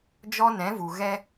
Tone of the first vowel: high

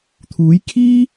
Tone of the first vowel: rising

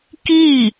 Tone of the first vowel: falling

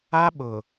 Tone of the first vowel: high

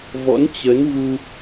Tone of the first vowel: rising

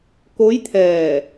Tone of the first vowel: rising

